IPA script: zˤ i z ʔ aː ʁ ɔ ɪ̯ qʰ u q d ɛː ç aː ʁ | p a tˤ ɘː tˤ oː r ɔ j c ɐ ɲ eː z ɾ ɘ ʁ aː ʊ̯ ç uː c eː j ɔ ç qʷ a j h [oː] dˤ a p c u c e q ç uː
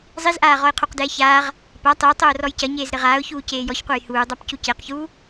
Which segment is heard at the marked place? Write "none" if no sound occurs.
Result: uː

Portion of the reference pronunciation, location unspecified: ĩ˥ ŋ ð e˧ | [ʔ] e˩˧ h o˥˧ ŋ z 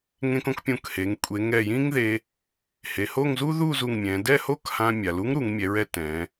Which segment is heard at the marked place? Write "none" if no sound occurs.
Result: h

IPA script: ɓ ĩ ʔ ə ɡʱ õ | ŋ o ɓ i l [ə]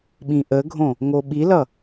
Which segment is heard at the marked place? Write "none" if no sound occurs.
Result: ʌ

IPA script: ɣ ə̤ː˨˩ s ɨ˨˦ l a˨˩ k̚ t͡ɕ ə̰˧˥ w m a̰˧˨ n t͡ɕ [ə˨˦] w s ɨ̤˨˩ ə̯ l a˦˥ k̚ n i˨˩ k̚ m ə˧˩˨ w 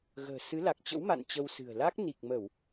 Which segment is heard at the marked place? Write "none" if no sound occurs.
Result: ə˧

